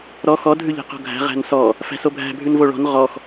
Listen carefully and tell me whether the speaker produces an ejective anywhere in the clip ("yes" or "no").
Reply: no